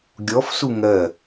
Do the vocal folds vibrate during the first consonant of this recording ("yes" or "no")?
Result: yes